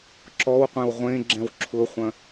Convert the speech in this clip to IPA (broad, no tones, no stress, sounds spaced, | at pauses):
ǁ ɔ w qʷ ẽ w ʁʷ ẽ ɡ͡ǁ ɛ̃ w ǁʰ ʊ χʷ ɐ̃